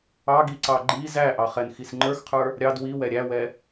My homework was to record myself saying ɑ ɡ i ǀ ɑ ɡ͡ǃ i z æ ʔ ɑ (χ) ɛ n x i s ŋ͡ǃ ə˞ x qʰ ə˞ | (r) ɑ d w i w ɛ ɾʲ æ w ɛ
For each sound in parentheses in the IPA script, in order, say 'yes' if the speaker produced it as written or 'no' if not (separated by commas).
yes, no